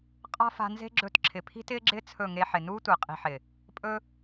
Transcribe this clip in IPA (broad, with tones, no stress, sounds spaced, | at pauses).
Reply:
qʼ a̤˦ f a̤˧ n z e̤˦ ɡ͡ǁ ɵ˧ t ǁʰ ɪ˨ pʰ i̤˦ t ɪː˦ ɡ͡ǁ ɪː˦ t͡sʰ ɵ˦˨ ŋ e˧ ħ ɪ˨ n uː˦ tʷ ɪː˨ qʼ i̤˧ ħ ɪ˨ | pʼ ɵ˦